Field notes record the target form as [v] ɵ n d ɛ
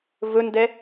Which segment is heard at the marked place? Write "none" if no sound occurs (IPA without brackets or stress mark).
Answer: v